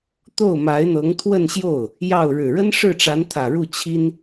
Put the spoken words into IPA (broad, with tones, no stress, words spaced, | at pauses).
t̪o˥˩ʊ̯ma˧˥ɪ̯n̪ɤ˧˥ŋ t̪ʰwə˥˧nɕjo˥˩ʊ̯ | jɑ˥˩ʊ̯ ɻɻ̩˨˩ɻə˥n ʂɻ̩˥˩ʈ͡ʂa˧˥nt̪ʰä˨˩ ɻu˥˩t͡ɕʰi˥n